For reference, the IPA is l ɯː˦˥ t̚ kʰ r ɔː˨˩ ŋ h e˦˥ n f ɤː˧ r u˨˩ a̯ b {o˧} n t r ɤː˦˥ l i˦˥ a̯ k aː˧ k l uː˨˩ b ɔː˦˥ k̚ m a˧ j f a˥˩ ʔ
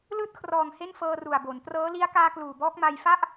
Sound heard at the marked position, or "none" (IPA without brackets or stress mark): o˩˦